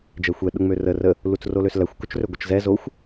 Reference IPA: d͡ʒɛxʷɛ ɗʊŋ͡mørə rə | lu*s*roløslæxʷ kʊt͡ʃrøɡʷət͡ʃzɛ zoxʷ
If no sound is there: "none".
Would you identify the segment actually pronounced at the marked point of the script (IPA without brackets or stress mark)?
t͡s